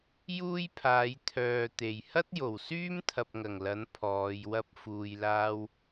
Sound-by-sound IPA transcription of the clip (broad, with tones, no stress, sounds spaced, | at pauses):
j uː˥ j pʰ aː˨˧ j t̪ʰ œː˨ t̪ e˨˩ j h ɐ˥ t̚ j o˨˩ w s yː˥ m t̪ʰ ɐ˧ p̚ ŋ ɐ˨˩ ŋ l ɐ˨˥ n pʰ ɔː˨˧ j w ɐ˥ p̚ f uː˨ j l aː˥ w